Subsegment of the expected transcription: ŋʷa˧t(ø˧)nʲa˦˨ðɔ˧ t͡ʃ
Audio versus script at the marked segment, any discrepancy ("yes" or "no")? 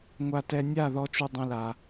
yes